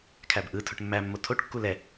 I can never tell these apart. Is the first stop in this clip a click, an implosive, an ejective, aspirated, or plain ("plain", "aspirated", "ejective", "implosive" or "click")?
aspirated